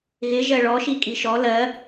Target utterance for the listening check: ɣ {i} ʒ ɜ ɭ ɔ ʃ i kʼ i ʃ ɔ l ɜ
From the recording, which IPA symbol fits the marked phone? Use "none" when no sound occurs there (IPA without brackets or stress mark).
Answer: ɪ